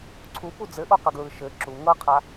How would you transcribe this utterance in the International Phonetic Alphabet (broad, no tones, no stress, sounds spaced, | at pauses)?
ǀʰ u p u d͡z ɘ ʔ o q ə ɡ ɹ ɯ ʃ ɘ ǁ u ŋ ɤ qʰ a